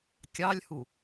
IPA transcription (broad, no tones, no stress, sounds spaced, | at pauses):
kʲ ɑ lʲ h u